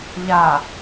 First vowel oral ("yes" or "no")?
yes